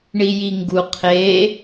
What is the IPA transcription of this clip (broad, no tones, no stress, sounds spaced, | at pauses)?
ɳ i j i ŋ ɡ u qʰ e